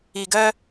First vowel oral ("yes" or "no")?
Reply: yes